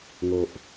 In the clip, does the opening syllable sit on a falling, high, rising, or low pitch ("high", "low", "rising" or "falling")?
low